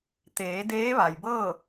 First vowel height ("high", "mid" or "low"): mid